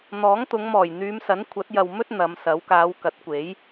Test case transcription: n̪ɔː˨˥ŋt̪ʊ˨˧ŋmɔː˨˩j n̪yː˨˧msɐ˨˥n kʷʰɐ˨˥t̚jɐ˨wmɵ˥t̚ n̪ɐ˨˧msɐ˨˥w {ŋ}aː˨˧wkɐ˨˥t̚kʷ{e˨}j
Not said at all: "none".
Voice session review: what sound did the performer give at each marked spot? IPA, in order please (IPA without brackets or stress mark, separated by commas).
k, e˨˥